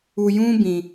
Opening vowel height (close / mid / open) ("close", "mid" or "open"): close